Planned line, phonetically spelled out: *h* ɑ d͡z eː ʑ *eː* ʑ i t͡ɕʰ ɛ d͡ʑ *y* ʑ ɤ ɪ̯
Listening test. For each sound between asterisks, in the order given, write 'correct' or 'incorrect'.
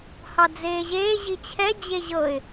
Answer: correct, correct, incorrect: e

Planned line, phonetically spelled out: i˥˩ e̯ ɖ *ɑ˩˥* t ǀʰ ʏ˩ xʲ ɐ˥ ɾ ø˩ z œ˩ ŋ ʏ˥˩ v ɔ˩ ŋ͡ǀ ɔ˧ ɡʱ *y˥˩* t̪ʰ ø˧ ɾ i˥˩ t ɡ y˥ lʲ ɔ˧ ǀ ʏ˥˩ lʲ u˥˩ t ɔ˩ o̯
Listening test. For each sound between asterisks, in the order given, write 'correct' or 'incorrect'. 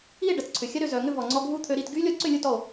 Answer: incorrect: ɐ˩˥, incorrect: u˥˩

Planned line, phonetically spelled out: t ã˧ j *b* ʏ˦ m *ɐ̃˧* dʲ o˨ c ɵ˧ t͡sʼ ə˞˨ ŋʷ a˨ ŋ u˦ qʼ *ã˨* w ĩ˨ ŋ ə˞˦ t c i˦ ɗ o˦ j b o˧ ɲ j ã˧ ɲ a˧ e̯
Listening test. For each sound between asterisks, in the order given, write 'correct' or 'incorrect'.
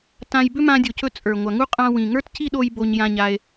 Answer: correct, incorrect: ã˧, incorrect: ã˧

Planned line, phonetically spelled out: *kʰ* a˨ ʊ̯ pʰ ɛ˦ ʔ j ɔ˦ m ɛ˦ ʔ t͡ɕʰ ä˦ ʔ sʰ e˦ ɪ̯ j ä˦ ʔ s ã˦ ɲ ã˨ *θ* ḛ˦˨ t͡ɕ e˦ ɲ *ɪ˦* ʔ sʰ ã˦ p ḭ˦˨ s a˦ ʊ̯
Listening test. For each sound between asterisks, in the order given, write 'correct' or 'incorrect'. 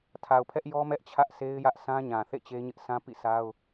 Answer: incorrect: tʰ, correct, correct

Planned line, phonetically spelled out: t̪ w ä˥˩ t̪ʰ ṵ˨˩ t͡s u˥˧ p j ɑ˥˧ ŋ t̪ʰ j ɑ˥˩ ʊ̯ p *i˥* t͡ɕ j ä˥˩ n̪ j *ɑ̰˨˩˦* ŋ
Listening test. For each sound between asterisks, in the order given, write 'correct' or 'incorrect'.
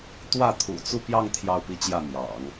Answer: correct, correct

